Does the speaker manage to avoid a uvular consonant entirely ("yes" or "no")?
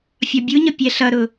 yes